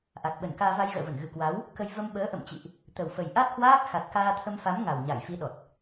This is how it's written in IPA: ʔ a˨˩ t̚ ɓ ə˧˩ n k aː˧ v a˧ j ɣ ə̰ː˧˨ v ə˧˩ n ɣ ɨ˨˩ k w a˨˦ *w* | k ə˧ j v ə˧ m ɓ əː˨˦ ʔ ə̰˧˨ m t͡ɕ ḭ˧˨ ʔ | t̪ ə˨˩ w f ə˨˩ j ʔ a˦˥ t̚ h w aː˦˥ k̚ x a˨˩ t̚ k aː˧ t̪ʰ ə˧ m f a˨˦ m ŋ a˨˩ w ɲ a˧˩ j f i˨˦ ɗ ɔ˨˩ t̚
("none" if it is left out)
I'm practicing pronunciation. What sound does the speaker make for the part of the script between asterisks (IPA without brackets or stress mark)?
w